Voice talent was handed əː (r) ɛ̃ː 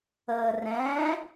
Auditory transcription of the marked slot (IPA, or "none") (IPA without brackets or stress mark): r